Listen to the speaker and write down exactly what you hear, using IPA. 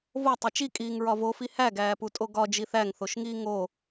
v o tˤ e t͡ʃ i kʼ iː ŋ ɹ ɒ v o f i h æ ɡ æː p u tʼ o ɡ ɒ d͡ʒ i θ æ ŋ θ o ʃ ŋ iː ŋ o

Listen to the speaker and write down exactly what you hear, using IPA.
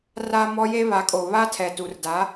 r a˦ m ɔ˦ j e˦ β a˨˦ kʼ o˨ β a˦ tʰ ɛ˨ t u˨ r d a˨˦

